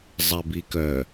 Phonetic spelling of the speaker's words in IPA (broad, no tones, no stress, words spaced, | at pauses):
zˤɛbikœ